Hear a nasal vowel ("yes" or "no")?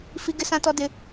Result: yes